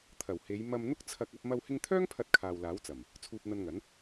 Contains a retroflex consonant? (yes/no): no